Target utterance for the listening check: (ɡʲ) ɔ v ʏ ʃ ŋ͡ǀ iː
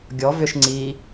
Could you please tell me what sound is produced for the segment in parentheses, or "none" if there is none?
ɡʲ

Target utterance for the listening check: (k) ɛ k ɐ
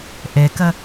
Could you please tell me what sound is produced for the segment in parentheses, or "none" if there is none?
ʔ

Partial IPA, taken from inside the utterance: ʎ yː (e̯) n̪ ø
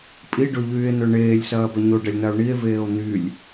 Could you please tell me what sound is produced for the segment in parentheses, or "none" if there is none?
e̯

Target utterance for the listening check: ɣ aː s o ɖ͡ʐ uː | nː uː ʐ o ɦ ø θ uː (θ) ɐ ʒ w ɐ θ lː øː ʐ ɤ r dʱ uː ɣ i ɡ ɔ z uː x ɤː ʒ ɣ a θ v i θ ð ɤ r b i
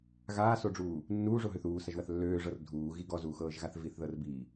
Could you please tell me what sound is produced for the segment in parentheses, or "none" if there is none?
s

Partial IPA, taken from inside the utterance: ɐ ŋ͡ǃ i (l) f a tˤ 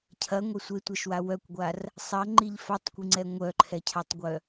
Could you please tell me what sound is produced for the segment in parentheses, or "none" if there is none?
ʎ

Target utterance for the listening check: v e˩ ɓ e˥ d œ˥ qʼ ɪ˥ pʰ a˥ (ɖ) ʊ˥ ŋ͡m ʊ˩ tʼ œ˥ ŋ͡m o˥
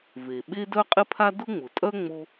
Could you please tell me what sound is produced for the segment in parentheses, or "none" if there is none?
d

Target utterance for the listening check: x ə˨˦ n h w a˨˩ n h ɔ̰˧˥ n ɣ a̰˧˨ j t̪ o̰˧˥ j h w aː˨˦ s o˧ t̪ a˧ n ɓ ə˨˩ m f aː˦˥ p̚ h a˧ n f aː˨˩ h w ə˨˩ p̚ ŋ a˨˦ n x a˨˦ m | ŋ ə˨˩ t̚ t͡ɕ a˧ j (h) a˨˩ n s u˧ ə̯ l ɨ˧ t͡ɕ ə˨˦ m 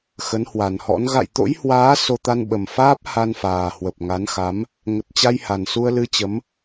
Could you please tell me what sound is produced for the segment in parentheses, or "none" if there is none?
h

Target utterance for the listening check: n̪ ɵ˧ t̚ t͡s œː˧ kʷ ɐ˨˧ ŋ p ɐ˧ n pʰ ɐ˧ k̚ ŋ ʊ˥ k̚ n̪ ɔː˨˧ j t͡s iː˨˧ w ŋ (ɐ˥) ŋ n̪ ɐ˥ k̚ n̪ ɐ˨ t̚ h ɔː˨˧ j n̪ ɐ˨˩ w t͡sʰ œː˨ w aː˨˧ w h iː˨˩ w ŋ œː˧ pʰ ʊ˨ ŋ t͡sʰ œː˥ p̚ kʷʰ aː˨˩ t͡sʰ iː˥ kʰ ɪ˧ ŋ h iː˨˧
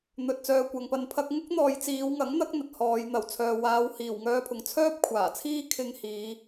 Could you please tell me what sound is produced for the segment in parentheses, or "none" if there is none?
ɐ˨˥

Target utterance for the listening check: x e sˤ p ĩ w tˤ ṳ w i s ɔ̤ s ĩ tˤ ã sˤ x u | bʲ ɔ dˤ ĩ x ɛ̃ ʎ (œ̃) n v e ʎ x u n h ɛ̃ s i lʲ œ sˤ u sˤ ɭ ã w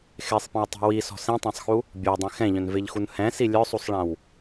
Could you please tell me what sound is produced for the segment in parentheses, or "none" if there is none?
œ̃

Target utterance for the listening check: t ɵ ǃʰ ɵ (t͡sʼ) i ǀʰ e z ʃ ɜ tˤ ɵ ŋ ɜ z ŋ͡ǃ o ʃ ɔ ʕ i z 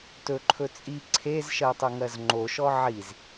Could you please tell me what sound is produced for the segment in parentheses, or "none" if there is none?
t͡sʼ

